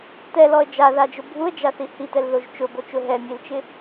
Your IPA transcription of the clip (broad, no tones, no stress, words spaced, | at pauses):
tɛlɔə̯ d͡ʒaðad͡ʒʊ bʱuə̯d͡ʒaθi hitɛlðoʒ t͡ʃʊbot͡ʃʊ ɦɛmʲelt͡ʃɪ